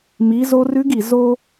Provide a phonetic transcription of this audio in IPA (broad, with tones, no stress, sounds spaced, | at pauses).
m i˩˧ z o˧ r ʉ˧˥ ɡ i˩ z o˧